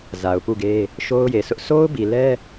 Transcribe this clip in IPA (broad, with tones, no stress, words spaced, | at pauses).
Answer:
za˨ʊ̯pu˦˨ɡe˦ | ʃo˦ʊ̯je˨sʰʊ˦ʔ sʰo˦ʊ̯bi˨lɛ˦